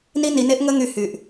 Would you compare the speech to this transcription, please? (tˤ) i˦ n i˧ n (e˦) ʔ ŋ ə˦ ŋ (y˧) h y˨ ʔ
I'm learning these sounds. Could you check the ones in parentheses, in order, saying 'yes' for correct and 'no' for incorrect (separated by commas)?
no, yes, yes